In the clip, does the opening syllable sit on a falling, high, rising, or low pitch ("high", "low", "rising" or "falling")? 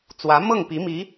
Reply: rising